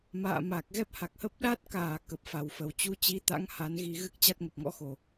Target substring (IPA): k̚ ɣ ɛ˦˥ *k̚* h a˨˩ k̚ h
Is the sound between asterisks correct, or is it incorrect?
incorrect